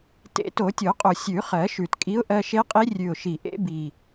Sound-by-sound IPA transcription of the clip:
tḛ˨˩˦ to˨˩˦tʲo˨˩˦qʼo˨˩ sʲʉ˨˩˦χɜ˨˩˦ʃʉ˨˩tkʼi˧˥ʊ̯ ʔɜ˧ʃe˧˥qʼi˧˥ rʲʉ˨˩ʊ̯ ʃi˨˩ ʔḛ˧˥bi˨˩

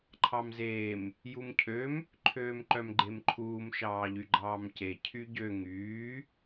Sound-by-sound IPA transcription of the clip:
ǃʰɑmzeːm | jumcʰøm | ǃʰøːmǃœmɡ͡ǃemǃʰuːm ʃɑːʎyɡ͡ǃɑːmce cʰyɟø ŋyː

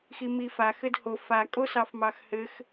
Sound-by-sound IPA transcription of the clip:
ximifax ɘdho fa kʼosɑfmɑxhɘx

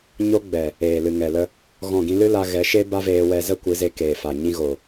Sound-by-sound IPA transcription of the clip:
ɲo˦ɡ͡bɛ˨ | eː˨lɨ˨ŋɛ˨lə˧ | ɣɔ̃˦˨ɡĩ˦ lɨ˦la˧ɣɛ˨˦ʃe˦ ba˦veː˧wɛ˧zə˦ kʷɨ˨˦ze˧keː˨fa˨ ɲĩ˧ɣo˨

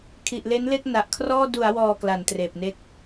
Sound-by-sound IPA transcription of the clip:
kʰi˨˩ʔle˦˥nle˥˩k̚ na˨˩ʔkʰrɔː˥˩ du˩˦a̯wɔː˨˩ kla˩˦ntreː˨˩p̚ne˥˩k̚

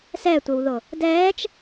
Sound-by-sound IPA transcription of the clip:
sɛtʷəwðo | dɛːt͡ʃ

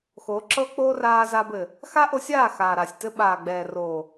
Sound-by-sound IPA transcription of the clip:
xo˨˦ǁɤ˦ k͡po˦raː˧za˧bɘ˨ | xa˦ʔo˧sʲaː˦˨ xaː˨ɾa˨sʲtɘ˧ ɓaː˨ɡ͡bɛː˨roː˨

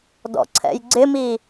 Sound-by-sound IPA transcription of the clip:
dɔ̰ǀʰɛ̰jɡ͡ǀɪmi

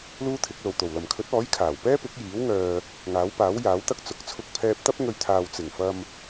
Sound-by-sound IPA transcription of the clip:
luː˥t̪ʰɪ˨˥k̚lo˨wt̪o˨˩w lɐ˨˩mkʰɵ˨˥t̚ɔː˨˥j kʰaː˨˩w pɛː˥pɪ˨˥k̚jiː˨˥w ŋœː˨ | ŋaː˨˥wpaː˨˥wjaː˨˥wt̪ɐ˥k̚ t͡sʊ˨˥k̚t͡sʰʊ˥k̚ pʰɛː˧p̚t̪ɐ˥p̚ ŋɵ˧ɥt̪ʰaː˨w t͡sɪ˨˩ŋfɐ˧m

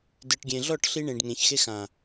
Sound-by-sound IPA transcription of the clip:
dɯ˨ʈɡʲẽ˨ɮɔ˦˨ʈ ɬi˧ɳẽ˨ɖŋẽ˨çxe˧ xã˨

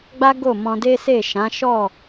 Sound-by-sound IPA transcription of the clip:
ɡ͡ba˦ ɡo˦˨mɔ̃˧de˦ se˦˨ʃã˨˦ ʃɔ˦˨

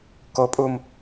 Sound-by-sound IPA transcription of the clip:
kopʼum

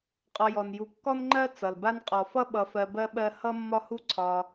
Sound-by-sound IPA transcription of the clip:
qʼɔ˨jɔ˩nju˨ kːɔ˦nŋ͡ǃɜ˦ t͡sʌ˩lba˥n qʼɔ˩fʌ˦ ɓʌ˨fɜ˨ bɜ˥ɓɜ˦ hʌ˦mːɒ˦hu˦ ǀʰɒ˨

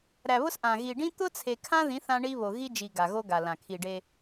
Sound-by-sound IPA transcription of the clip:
ɾæ˨βʊ˦s ʔã˨ ɣi˨ɖĩ˦ t̪ʊ˦t͡sʰe˨kʰã˦ðĩ˨˦θ ã˦ɳi˦βo˨ ɣi˦d͡ʒi˨ ɡa˨ɣo˦ɡa˨lã˨ kʰi˨ ɖe˦

